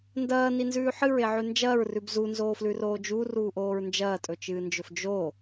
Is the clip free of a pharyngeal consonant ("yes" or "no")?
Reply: no